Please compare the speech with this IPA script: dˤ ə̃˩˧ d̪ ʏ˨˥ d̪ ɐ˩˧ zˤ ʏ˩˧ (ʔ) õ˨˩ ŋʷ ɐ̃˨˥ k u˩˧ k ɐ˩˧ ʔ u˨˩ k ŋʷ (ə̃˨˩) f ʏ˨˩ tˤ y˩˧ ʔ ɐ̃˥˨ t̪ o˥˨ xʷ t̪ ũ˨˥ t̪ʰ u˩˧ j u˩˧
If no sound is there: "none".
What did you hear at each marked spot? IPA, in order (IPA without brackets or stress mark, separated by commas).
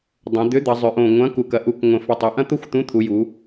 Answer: ʔ, ə̃˨˩